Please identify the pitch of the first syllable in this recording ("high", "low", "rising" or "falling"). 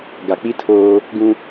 low